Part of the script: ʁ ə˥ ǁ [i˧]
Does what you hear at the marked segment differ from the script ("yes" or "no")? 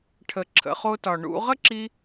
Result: no